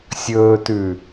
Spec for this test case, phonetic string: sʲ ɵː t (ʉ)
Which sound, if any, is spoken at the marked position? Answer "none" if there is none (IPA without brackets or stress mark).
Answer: ʉ